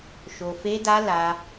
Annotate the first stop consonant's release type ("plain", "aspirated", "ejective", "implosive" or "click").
plain